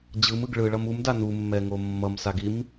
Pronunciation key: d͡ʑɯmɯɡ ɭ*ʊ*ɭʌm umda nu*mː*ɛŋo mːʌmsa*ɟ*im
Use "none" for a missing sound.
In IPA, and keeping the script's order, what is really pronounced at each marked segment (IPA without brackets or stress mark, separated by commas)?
ɯ, mː, ɡ